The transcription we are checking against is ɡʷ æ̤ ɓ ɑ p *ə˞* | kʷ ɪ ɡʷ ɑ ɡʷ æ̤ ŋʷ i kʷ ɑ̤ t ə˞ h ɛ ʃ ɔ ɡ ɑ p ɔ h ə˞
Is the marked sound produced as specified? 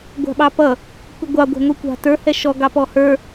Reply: no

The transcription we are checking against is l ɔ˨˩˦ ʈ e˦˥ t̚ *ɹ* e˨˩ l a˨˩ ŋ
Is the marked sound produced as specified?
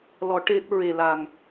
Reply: yes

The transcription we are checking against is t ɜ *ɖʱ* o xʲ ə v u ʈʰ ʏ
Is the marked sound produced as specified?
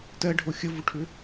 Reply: yes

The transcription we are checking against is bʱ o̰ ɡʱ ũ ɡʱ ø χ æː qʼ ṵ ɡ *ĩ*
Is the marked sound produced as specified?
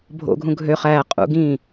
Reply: yes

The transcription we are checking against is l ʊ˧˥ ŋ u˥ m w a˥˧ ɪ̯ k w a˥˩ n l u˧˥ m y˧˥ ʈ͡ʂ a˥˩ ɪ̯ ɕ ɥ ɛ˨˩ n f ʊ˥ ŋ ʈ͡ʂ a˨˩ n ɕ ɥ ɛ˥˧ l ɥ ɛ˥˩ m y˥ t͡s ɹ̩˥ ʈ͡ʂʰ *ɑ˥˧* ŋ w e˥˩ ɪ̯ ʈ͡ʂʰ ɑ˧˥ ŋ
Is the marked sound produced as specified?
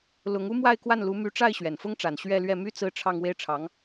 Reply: yes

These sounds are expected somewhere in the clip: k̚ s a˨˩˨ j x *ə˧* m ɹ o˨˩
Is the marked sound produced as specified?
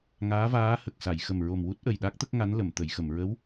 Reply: no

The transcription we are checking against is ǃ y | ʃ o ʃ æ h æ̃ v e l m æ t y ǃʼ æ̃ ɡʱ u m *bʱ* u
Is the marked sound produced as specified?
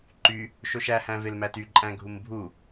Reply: yes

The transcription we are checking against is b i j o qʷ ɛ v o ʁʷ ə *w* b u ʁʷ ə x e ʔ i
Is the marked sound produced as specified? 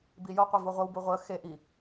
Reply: yes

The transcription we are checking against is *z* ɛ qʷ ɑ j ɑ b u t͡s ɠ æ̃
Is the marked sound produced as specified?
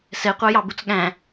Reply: no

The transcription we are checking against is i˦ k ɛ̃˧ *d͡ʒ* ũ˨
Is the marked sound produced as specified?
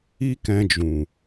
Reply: yes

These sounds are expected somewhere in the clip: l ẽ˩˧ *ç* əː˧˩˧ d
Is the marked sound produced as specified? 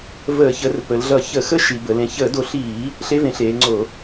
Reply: yes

